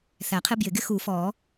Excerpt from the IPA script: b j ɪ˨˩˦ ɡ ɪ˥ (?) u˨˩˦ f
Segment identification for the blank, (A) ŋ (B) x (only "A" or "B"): B